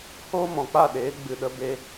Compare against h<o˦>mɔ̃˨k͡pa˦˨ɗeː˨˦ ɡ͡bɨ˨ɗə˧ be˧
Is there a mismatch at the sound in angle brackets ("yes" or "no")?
yes